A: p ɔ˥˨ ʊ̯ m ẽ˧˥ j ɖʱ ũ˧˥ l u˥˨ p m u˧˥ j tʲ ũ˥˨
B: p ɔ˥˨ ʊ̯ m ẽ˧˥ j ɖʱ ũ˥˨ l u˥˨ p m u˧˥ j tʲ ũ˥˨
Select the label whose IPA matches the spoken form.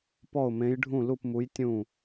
B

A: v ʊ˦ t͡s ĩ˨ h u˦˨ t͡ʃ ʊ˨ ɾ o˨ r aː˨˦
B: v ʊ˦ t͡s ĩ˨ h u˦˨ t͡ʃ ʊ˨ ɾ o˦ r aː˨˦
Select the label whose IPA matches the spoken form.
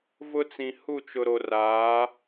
A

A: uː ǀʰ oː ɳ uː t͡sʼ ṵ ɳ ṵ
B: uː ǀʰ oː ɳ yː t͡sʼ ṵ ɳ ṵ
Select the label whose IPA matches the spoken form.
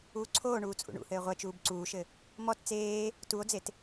A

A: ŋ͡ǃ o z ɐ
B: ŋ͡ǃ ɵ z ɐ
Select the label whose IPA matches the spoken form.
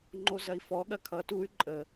A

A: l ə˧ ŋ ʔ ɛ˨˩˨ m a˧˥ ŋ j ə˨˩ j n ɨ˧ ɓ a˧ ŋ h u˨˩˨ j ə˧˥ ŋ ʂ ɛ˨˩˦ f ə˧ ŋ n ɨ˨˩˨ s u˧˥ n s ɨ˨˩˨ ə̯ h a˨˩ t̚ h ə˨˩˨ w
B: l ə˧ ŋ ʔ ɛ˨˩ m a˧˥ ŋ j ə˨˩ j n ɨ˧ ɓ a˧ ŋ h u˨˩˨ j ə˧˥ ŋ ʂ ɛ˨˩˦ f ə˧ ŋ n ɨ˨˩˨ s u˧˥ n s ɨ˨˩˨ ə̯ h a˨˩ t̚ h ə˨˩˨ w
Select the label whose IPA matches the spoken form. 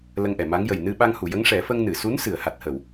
A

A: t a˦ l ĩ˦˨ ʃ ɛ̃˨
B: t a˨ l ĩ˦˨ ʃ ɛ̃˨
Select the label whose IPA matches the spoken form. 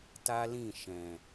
A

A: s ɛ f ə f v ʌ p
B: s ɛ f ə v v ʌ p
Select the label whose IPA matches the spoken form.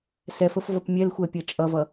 A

